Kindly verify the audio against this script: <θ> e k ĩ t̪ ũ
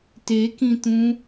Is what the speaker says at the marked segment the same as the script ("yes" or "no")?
no